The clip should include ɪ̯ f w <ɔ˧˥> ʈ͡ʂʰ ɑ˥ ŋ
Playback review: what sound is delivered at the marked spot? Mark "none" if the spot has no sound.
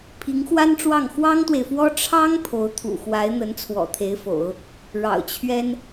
ɔ˥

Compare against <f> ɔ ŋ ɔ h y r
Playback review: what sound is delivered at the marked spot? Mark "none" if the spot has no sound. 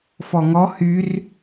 f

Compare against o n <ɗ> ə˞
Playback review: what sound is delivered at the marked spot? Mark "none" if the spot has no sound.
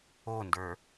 d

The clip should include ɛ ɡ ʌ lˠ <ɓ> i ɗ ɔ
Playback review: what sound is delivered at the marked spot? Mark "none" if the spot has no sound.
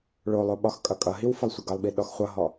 ɓ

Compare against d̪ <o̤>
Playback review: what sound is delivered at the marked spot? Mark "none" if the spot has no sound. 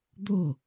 o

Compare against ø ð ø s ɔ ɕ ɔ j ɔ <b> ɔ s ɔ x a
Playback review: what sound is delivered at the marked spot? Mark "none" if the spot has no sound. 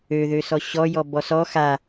b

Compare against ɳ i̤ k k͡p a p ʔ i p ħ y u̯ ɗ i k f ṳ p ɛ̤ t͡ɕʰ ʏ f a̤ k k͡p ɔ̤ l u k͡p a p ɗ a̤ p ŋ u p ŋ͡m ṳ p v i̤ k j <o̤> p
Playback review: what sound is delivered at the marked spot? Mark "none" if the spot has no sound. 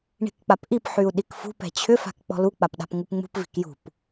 ṳ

